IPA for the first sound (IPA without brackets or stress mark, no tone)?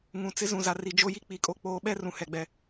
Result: ŋ